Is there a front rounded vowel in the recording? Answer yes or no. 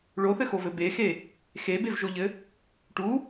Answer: no